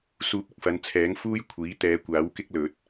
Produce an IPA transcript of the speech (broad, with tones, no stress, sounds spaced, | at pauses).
s uː˧ p̚ ɪ˧ k̚ f ɐ˨˧ n t͡sʰ ɛː˨˥ ŋ f uː˥ j kʷʰ iː˨˥ t̪ ɛː˨˧ kʷ aː˨˥ w k ɪ˥ k̚ l ɵ˨˥ t̚